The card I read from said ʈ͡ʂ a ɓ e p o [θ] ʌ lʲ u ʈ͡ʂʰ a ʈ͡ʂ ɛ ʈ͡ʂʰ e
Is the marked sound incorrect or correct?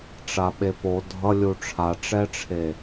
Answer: incorrect